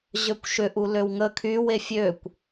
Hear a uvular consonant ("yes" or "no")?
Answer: no